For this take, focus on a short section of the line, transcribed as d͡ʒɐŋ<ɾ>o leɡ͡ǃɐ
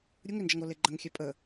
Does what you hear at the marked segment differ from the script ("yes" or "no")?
no